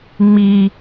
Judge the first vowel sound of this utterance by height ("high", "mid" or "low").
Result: high